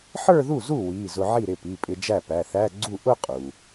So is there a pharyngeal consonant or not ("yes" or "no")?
yes